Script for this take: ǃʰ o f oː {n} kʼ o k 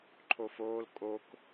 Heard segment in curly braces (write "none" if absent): l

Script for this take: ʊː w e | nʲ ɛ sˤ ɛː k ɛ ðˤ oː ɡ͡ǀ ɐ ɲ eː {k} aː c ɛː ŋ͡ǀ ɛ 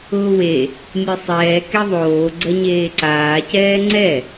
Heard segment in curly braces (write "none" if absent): ǀ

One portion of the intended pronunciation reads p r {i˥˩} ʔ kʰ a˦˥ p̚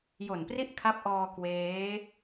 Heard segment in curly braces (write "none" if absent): i˥˩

